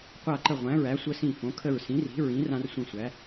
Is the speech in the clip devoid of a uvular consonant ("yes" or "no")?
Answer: no